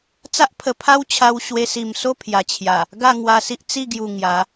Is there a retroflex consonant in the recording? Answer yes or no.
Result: no